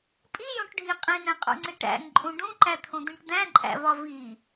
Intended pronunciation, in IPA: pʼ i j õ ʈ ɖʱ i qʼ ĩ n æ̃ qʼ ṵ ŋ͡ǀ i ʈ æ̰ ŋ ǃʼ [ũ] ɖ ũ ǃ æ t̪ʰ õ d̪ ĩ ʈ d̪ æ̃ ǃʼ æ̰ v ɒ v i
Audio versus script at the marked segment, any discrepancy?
no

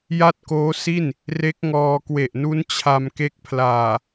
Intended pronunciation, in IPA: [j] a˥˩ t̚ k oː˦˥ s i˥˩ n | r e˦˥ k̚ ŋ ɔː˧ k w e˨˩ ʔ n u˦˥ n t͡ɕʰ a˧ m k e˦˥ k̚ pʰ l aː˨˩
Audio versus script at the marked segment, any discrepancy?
no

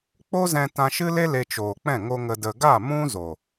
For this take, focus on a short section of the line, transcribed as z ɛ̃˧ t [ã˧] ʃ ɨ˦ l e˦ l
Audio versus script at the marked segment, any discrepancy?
no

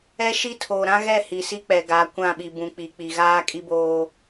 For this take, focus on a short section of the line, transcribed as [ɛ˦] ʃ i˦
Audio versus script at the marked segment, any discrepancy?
no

